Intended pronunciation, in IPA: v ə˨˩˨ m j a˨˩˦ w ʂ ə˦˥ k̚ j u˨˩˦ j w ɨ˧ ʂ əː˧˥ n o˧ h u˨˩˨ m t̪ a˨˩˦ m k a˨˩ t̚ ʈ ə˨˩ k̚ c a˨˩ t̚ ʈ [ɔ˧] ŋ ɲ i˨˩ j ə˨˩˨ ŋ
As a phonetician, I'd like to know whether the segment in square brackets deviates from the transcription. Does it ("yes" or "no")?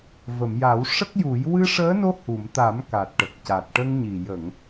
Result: yes